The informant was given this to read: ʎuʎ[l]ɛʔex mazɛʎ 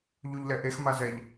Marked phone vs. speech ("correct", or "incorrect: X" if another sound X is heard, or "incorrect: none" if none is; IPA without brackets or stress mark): correct